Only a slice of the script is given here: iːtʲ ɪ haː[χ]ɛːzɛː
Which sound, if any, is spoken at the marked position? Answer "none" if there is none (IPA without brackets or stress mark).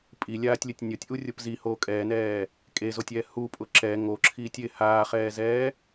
χ